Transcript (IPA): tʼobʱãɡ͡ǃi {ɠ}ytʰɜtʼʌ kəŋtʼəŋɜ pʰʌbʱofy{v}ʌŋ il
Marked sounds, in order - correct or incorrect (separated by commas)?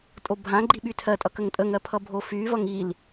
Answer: incorrect, correct